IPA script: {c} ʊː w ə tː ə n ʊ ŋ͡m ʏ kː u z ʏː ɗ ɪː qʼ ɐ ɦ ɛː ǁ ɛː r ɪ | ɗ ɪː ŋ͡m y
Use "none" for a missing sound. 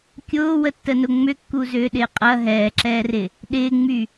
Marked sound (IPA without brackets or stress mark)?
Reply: kʲ